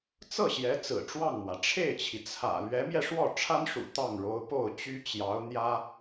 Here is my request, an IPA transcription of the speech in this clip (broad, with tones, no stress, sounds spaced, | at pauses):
t͡s ɤ˥˩ ɕ j ɛ˧˥ t͡s ɹ̩˨˩ ʈ͡ʂ w ɑ˥˩ ŋ m w ä˩ ʈ͡ʂʰ e˥˩ ɪ̯ t͡ɕʰ i˩ t͡sʰ ä̰˨˩ l ɥ ɛ˧˥ m j ɛ˧ ʂ w ɔ˥˩ ʈ͡ʂʰ a˥ n ʂ ṵ˨˩ t̪ ɑ˥˩ ŋ ɻ o˧˥ ʊ̯ p o˥˩ ʊ̯ t͡ɕ y˥ t͡ɕ j ɑ˧˥ ʊ̯ n̪ j ä˥